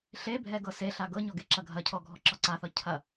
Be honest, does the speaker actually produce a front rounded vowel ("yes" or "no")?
no